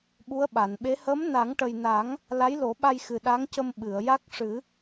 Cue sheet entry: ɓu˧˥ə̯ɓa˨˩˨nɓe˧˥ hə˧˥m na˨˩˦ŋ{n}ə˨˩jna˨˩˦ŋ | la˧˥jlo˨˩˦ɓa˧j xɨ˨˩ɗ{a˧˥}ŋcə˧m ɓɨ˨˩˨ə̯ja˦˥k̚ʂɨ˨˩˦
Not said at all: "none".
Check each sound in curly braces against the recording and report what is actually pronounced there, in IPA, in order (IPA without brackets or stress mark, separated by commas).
ʈ, a˧˥